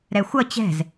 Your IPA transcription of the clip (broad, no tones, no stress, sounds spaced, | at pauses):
ɾ ɛ xʷ ʌ t͡ɕ ɛ̤ z